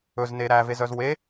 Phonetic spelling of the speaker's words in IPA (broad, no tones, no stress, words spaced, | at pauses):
ɵzne ɾævezœz we